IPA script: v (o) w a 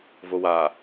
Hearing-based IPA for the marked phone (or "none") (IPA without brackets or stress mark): o